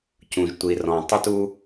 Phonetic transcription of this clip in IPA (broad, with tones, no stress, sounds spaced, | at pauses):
c ũ˩ ʒ tʷ i˩ r ɔ̃˩ tˤ œ˧ t u˧